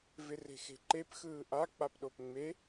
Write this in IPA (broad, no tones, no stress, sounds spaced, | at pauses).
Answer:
v ɪ r e̤ x e̤ ǃ e p x ɯː ʔ a k͡p a p ɗ o p ŋ͡m e